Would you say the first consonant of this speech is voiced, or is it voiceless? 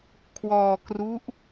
voiceless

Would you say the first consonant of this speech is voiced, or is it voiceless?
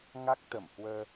voiced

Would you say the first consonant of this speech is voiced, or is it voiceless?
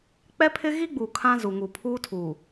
voiceless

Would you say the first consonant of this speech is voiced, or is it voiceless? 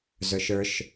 voiced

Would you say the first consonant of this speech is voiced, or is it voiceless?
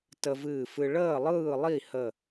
voiceless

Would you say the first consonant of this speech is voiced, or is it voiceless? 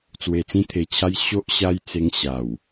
voiceless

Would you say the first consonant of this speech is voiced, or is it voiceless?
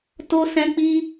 voiceless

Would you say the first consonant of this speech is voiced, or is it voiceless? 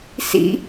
voiceless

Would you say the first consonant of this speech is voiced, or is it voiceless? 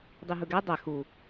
voiced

